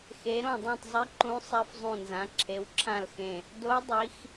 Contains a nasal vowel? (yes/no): yes